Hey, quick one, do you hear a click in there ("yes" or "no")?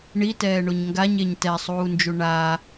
no